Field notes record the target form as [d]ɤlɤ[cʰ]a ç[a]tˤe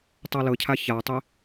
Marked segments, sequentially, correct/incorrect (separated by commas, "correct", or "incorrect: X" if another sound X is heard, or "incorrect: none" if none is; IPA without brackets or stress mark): incorrect: tˤ, correct, correct